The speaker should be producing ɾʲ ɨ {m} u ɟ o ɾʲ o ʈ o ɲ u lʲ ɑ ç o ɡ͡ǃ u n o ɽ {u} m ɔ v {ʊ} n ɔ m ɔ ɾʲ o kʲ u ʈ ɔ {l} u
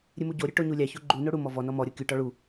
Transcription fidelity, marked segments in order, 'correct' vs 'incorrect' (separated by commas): correct, correct, incorrect, incorrect